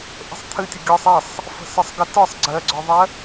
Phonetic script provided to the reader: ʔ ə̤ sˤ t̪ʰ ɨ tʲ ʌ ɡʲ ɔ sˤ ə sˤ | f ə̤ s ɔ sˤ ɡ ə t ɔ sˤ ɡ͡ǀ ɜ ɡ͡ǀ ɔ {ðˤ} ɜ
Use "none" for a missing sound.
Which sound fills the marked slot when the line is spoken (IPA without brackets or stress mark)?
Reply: ðˤ